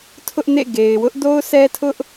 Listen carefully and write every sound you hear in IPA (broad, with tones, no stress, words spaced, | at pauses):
tʰʊ˦ʔnḛ˦˨ ɡe˨ɪ̯ wʊ˦ʔdo˦ʊ̯sɛ˦tʰʊ˦ʔ